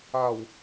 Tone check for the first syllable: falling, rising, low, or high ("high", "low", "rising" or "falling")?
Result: low